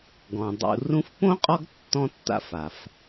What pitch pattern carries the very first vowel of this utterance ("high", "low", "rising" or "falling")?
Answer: low